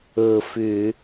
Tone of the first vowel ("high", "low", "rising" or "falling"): low